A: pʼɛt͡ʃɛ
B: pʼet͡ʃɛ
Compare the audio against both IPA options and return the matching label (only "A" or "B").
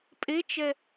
B